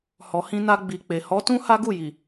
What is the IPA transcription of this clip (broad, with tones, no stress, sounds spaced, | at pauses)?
h ɔ˨ h ĩ˧ n a˧ ɡ͡b i˨ k͡p e˨ h ɔ˨˦ t ũ˦ h a˦ ɡ u˦˨ j i˨